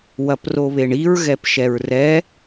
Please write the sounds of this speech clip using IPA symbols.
w ɐ p r o β e ɳ i ɹ ɣ ɛ p ʃ ɛ ɹ r ɛ

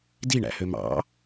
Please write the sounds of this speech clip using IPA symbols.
d i ɳ æ̰ h ø m ɑ̰

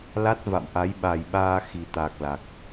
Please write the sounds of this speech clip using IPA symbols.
l a˦˥ t̚ v a̰˧˨ m ʔ a˨˦ j ɓ a˨˩ j ɓ aː˧ x i˨˩ t̪ a˨˩ k̚ l a˨˩ k̚

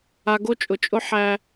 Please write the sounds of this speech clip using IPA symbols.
a˨ ɡ o˦ t͡ʃʼ ʊ˨ t͡ʃʼ ʊ˦ ħ æ˦

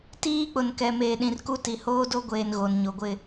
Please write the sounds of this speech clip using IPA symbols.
t iː˦ k͡p ʊ˨ n k ɛ˨ m eː˨ ɗ ĩ˨ r k u˦ t i˨ h oː˦ d o˦ ɡʷ eː˨ n ɣ o˨ n ɲ o˨ ɡʷ ɪ˦

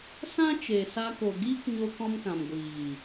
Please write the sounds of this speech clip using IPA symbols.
s ã˦ t͡ʃ e˨ s a˧ k o˨ ɡ iː˦ k ɲ o˧ k ɔ̃˧ m k ã˨ m ɡʷ iː˨

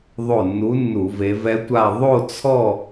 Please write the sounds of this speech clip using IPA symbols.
ðˤ o˧˩ nː u˨˦ nː u˧˩˧ v e˨˦ v ɛ˦˥ tʷ a˥˧ ðˤ o˥˧ t͡sʰ ɔ˥˧

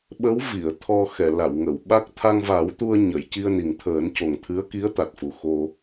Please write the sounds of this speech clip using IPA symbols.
ɓ ə˧˥ w v i˨˩˨ ə̯ t̪ʰ ɔ˧ x ɛ˨˩˨ l a˨˩˨ w ŋ ə˨˩˨ w ɓ a˦˥ k̚ t̪ʰ a˧ ŋ v a˨˩˦ w t̪ u˧ ə̯ ɲ ə˨˩˨ j c i˧ ə̯ n i˨˩ ŋ t̪ʰ əː˨˩˦ n c o˨˩ ŋ t̪ʰ ɨ˧˥ ə̯ k i˧˥ ə̯ t̪ a˨˩ t̚ f u˨˩ x o˧

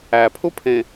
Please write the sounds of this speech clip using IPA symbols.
æ pʰ u pʰ ẽ

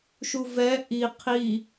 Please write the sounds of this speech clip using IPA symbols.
ʃ u v ɛ ʔ i qʰ i

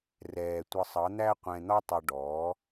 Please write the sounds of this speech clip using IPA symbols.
r ɛː˨ tʷ ə˧ sˤ ʌ˨˦ n̪ æ˦ qʷ ɛ̃˧ n̪ ɒ˦ tˤ ʌ˧ ɖ ɔː˨˦

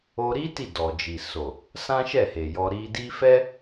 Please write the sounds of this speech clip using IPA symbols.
o˧ ɾ i˦ t i˦˨ d ɔ˨ d͡ʒ i˨ s o˨ | s ã˦ ʃ ɛ˦˨ h e˨ j ɔ˧ ɾ i˧ d i˦ f ɛ˦

